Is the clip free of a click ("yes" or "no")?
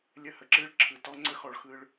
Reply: no